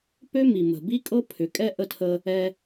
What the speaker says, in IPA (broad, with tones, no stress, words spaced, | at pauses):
pø˦mi˨ mə̤˨bi˦ kʼɤ˦pʰʏ˨˦kʼɛ˦ ʔə˦tʰə˦ | ɛ˦